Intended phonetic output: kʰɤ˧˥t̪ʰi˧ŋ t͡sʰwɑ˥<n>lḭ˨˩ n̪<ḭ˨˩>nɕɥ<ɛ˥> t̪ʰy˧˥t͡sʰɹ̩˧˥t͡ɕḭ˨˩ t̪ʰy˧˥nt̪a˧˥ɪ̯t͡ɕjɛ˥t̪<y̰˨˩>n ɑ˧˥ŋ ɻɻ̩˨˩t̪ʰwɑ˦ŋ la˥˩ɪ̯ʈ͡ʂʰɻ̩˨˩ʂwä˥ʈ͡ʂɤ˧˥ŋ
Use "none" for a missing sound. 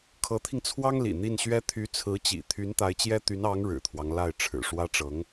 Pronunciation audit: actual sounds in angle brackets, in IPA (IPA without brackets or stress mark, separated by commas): ŋ, i˥˩, ɛ˥, y˧˥